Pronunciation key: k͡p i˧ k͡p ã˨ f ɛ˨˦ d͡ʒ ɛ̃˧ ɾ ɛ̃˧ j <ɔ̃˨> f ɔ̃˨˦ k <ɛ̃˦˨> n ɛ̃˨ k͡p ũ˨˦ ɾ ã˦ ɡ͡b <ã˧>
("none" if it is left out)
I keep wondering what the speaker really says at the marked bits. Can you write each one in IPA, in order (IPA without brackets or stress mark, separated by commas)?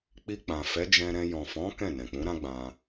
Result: ɔ̃˨, ɛ̃˦˨, ã˧